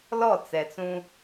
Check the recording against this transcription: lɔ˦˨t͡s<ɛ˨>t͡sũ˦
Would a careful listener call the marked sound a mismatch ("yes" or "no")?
no